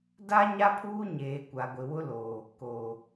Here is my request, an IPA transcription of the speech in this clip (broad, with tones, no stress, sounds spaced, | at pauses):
d a˦ ɲ a˦ pʰ uː˦ ɲ eː˨ kʷ a˨ ɡʷ ɪ˨ w ʊ˦ l oː˨ | k oː˨